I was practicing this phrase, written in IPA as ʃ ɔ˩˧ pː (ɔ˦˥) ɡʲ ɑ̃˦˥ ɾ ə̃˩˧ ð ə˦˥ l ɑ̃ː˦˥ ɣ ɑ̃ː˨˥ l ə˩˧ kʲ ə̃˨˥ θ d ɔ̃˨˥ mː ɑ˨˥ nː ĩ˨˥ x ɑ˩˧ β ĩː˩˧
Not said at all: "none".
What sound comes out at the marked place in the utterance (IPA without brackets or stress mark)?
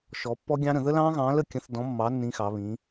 ɔ˦˥